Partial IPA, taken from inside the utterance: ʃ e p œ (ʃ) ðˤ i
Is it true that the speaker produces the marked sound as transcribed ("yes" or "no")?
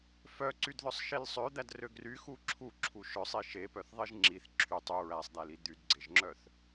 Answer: no